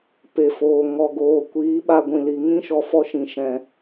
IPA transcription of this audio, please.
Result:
p e˨ f oː˨ ŋ ɔ˨ ɡ oː˨ kʷ iː˨˦ ɓ a˧ ɡʷ ĩ˨ l i˨ ŋ ĩ˦ ʃ ɔ˨ f ɔ˦ ʃ ĩ˨ ʃ ɛ̃˨

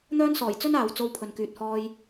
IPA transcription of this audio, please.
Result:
n̪ œː˥ n s ɔː˨˩ j t͡s ɵ˥ n aː˨ w t͡s o˧ w pʰ ɵ˨ n k yː˨ t̚ h ɔː˧ j

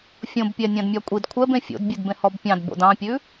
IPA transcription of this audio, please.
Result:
fʲ õ b pʲ æ nʲ ɑ̃ d mʲ ɑ kʷʼ i d kʷʰ ɛ b ẽ fʲ o̰ d bʲ ʉ d b ẽ h ɔ b pʲ ɑ̃ d b o̰ d ɑ̃ pʲ ʉ

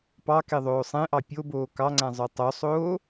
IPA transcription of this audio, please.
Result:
p ɑ k e ðˤ oː sˤ ẽ ʔ ɑ pʲ o b oː k ɑ ŋ͡ǀ æ̃ zˤ ø tˤ o sˤ oː

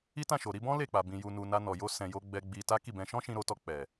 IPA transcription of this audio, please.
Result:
i˦ t ã˦˨ ʃ o˨ ɾ i˧ b ɔ̃˦ l e˦˨ k͡p a˨ b ĩ˨ j u˨ n u˨ n a˧ n ɔ˨ j o˧ s ɛ̃˨ j o˧ ɡ͡b ɛ˧ ɡ͡b i˧ t a˦ k i˦˨ b ɛ̃˧ ʃ ɔ̃˦ ʃ ĩ˧ ɾ o˧ t ɔ˧ k͡p ɛ˨

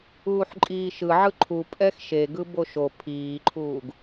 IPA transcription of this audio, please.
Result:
uː ħ ǃʼ iː ʃ ɯ ʕ ɯ ǃʰ u pʼ ɛ x ʃ e ɡ ɯ b o ʃ o pʰ iː ǃʰ uː ɡ

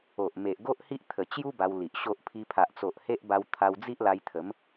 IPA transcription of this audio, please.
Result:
o˨ ʔ m e˨ ʔ ɡ o˦ ʔ h i˦ ʔ t̪ʰ ə˨˩ t͡ɕ j u˦ b a˧ w l i˨ ʔ ɕ o˦ ʔ pʰ i˧ pʰ a˨ ʔ t͡s o˨ ʔ h e˦ ʔ b a˧ w t̪ʰ a˧ w d͡z i˦ ʔ l a˧ j t̪ʰ ə˨˦ m

